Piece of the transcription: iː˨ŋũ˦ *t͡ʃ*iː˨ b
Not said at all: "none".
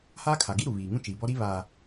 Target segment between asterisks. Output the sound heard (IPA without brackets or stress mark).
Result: t͡ʃ